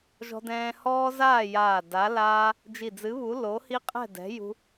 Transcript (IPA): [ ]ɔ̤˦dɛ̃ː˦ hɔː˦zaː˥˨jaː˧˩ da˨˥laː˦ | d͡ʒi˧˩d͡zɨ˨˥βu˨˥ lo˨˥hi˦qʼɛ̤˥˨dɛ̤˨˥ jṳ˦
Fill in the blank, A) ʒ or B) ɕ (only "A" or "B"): A